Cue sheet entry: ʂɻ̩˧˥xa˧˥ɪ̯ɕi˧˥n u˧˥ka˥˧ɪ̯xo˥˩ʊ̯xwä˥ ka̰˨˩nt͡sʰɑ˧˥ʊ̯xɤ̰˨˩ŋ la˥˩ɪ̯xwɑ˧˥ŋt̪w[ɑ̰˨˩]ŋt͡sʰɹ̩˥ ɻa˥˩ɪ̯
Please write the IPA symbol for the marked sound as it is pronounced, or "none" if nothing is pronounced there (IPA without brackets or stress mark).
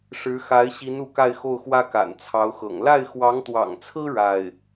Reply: ɑ̰˨˩